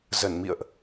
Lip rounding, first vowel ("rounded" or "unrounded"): unrounded